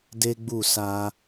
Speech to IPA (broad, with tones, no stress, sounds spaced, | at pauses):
d e˦ ɡ͡b u˦˨ s a˧